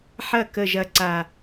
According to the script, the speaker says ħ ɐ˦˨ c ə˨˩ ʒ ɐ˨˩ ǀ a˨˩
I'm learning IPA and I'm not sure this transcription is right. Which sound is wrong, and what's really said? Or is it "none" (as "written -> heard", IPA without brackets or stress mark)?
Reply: c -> k